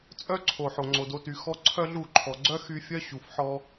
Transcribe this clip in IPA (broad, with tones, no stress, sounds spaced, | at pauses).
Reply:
t͡sʼ œ˦ ǀʰ o˨ ħ o˨ ŋ͡ǀ o˨ d o˧ t y˨ x ɔ˧ ǀʰ œ˦ ɮ u˦˨ ǃʰ ɔ˨ ɡ͡ǀ œ˦ x y˧ fʲ œ˦ ɕ u˨ f ħ ɔ˧